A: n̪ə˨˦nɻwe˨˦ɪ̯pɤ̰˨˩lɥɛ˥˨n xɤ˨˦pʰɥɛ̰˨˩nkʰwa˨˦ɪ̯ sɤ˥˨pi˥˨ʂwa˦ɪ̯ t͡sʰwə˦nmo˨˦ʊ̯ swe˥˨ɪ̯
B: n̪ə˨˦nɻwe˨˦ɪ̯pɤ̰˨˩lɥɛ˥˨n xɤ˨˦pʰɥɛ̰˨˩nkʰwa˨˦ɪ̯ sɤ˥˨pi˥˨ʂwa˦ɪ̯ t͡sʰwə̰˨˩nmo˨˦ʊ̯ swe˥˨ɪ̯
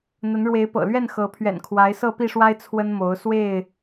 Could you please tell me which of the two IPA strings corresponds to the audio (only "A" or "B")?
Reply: A